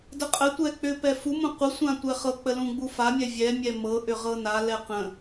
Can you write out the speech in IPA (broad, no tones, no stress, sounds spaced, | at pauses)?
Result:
d ə qʼ ə tʷ ɛ k͡p ʏ p ɛ f u m ũ qʷ ə sʷ ã tʷ ɛ χ ɤ k͡p ə l ũ ɡ͡b u f a mʲ ɛ vʲ ɛ mʲ ɛ m ɤ ʔ ʏ ʁ ɤ n a l ɛ q ə̃